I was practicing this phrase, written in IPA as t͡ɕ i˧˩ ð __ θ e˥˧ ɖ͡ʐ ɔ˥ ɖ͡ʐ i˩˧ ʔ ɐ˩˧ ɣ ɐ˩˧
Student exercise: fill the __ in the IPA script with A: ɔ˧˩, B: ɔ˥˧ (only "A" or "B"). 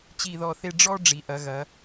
A